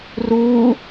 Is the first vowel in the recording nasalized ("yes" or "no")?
no